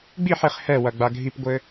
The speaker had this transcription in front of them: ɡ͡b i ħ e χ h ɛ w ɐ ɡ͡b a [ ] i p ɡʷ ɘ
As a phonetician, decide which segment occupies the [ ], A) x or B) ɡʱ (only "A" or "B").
B